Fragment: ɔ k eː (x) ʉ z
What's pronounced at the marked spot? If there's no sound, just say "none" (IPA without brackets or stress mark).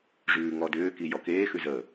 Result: x